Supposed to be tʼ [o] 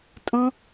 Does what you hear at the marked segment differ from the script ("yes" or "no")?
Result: yes